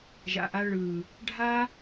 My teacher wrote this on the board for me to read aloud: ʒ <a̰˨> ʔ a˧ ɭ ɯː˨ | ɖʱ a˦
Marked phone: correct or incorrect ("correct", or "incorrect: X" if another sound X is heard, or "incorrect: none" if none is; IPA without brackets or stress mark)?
correct